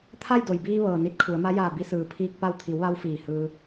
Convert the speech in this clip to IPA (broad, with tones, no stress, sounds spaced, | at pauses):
t̪ʰ a˥˨ j d o˩ j b iː˧ ʋ ɤː˩ n i˧˥ t̚ kʰ u˩˧ ə̯ m a˧˥ j aː˧˩ b i˧ s ɯː˩ pʰ iː˧ k̚ p a˧ w t̪ʰ i˩˧ w ʋ a˧ w f iː˧˩ h ɯː˧